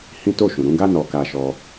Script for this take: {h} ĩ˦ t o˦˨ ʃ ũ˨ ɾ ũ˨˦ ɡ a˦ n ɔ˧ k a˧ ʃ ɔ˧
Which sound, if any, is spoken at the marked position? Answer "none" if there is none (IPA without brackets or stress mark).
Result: h